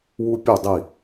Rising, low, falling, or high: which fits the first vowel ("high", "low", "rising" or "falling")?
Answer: high